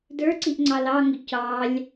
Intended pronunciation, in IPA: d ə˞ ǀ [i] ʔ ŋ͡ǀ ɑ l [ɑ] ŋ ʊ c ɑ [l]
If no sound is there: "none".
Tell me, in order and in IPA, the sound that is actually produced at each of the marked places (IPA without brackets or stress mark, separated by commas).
i, ɑ, lʲ